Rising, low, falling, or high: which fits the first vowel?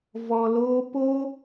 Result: low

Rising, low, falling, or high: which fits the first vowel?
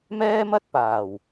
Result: high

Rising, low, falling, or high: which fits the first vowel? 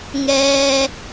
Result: high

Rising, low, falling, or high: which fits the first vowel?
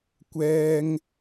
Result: high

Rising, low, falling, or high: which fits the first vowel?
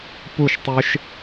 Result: falling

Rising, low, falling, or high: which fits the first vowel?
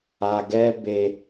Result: low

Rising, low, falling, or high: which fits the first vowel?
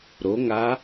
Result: rising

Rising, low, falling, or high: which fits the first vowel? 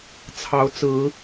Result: rising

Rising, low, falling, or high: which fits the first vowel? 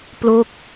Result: falling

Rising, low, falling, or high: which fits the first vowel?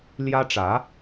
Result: high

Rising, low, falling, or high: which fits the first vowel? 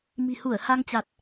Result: low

